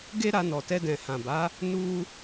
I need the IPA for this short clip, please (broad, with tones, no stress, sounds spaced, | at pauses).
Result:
ɡ e˦ ɾ a˧ n ɔ˨ t ɛ˧ d ɛ̃˨ h ã˨ b a˨˦ | n u˦